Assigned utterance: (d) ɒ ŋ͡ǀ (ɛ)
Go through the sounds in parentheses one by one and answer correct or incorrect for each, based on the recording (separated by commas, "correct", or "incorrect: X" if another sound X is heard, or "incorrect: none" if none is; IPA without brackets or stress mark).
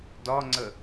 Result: correct, incorrect: ə